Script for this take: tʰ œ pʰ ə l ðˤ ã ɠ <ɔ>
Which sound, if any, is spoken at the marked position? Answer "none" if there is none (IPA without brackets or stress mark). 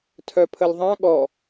ɔ